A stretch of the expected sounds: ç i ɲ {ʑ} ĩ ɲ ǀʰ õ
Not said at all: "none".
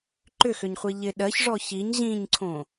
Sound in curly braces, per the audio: ʑ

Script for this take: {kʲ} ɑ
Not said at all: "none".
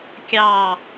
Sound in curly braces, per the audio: kʲ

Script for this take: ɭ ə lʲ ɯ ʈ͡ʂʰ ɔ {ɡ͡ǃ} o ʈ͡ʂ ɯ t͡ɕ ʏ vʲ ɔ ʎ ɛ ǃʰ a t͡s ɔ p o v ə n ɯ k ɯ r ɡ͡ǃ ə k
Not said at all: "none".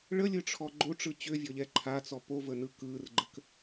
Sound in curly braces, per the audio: ɡ͡ǃ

